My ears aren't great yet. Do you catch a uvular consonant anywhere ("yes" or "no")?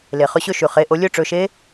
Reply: yes